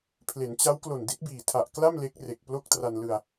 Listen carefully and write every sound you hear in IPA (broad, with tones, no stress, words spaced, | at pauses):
pʰle˩˦nt͡ɕa˦˥wklo˨˩n di˦˥t̚biː˨˩tʰa˨˩ʔkla˥˩m le˦˥k̚re˨˩k̚ plo˥˩k̚tra˧nlɯ˧a̯